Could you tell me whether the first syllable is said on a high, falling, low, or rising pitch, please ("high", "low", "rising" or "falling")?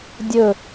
falling